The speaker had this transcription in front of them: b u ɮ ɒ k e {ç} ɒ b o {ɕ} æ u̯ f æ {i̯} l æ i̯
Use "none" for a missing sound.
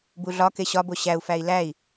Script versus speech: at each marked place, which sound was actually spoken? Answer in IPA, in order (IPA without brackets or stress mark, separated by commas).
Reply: ɕ, ɕ, i̯